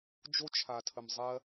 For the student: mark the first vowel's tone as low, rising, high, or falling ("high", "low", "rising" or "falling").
high